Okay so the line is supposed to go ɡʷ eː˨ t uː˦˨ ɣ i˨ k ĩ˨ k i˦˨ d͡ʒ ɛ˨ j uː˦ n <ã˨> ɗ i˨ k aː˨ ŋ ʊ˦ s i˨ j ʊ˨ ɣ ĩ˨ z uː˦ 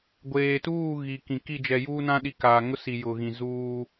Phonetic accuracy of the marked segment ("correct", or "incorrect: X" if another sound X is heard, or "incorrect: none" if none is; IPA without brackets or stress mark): incorrect: ã˦